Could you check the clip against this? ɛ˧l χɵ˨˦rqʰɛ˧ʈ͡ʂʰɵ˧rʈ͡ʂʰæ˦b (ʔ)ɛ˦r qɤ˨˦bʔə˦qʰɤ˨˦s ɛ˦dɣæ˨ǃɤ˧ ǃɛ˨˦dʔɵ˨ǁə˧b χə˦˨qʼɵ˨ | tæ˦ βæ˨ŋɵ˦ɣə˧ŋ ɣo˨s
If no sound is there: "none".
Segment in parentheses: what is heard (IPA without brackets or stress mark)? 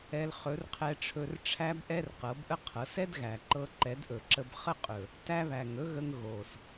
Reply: ʔ